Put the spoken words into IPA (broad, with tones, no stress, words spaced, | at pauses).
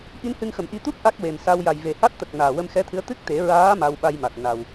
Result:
ʔi˧˥nhɨ˧ŋxə˨˩˨mʔi˧ t̪u˦˥p̚ ʔa˦˥k̚we˨˩msa˧w ja˨˩jve˨˩˨ha˦˥t̚t̪ə˨˩k̚ naː˨˩wə˧mxɛ˧˥t̪ʰɨ˧˥ə̯ t̪ɨ˦˥k̚t̪e˨˩˦ɹaː˧˥ ma˧wɓa˧jma˨˩t̚ na˨˩w